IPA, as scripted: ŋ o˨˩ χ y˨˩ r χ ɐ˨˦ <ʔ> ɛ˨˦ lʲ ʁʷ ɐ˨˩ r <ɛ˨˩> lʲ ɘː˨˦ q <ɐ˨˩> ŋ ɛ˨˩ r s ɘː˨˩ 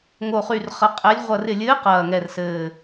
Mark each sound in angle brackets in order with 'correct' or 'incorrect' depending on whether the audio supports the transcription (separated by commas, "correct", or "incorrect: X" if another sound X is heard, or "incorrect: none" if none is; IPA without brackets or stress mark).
incorrect: qʼ, incorrect: ɪ˨˩, incorrect: ɐː˨˩